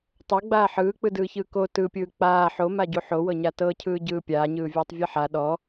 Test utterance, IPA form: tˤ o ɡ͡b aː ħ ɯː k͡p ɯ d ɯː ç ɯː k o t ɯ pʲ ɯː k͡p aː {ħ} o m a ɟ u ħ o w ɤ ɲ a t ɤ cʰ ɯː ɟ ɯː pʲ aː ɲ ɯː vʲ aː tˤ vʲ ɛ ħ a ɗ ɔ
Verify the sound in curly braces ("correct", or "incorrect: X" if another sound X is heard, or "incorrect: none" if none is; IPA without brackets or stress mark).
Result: correct